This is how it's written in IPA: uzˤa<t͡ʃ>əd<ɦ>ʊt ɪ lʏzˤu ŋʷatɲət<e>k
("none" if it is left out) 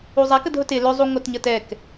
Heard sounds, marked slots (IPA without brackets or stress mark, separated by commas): k, ɦ, ɛ